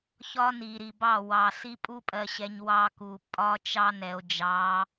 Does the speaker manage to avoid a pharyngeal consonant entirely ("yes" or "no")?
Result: yes